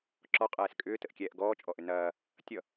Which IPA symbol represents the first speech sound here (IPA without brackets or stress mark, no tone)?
ǁ